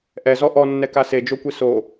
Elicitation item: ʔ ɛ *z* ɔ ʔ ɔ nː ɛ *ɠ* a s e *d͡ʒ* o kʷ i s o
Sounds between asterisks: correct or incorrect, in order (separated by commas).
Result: correct, incorrect, correct